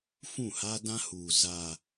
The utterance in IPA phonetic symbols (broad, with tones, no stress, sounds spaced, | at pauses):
f ũ˦˨ h a˦ d ã˦ h uː˨ z a˨